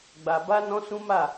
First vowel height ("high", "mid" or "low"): low